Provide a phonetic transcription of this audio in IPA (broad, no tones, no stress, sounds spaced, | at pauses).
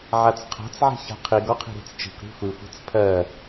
ʕ a t͡s qʰ a̤ t͡s ʕ i̤ ç a̤ qʰ i ɡ ɔ qʰ i̤ ɾ i̤ t͡s t͡ʃ i̤ kʷ ɾ i̤ xʷ i xʷ i̤ t͡s pʰ ɜ